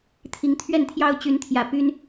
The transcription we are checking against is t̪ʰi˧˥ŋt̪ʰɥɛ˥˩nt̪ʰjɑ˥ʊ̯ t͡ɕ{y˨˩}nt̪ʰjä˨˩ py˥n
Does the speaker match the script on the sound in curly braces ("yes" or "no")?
no